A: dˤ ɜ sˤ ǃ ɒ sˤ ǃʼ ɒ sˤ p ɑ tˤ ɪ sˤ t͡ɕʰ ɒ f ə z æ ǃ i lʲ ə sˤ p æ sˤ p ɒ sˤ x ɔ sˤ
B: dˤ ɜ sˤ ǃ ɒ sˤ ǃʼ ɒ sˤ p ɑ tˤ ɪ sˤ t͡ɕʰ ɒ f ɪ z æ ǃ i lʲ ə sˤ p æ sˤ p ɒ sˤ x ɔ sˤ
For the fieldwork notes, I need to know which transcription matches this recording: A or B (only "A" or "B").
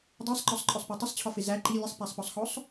B